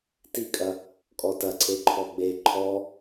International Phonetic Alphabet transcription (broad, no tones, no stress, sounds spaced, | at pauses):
t i kʼ ɐ | kʼ ɔ t ɐ ǀʰ e ǃʰ ɔ ɡ͡b e ǃʰ ɔ